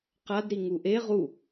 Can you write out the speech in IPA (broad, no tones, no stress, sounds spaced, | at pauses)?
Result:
q a d ɾ i ŋ u ʔ e ʁ u